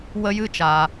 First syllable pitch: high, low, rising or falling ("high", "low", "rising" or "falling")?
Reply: high